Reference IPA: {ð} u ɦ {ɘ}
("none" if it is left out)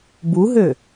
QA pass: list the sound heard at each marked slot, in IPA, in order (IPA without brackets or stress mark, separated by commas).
b, ø